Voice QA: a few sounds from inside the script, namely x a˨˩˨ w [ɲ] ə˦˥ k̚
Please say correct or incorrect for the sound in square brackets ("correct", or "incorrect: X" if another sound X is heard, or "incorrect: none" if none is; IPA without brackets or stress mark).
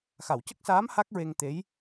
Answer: incorrect: c